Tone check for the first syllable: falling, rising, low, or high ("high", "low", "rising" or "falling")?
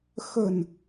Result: low